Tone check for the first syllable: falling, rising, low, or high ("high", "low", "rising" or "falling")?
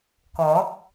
rising